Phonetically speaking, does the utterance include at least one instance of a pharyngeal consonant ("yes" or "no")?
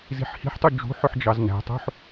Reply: yes